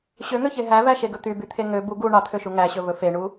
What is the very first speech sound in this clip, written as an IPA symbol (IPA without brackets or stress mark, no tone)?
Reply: ɕ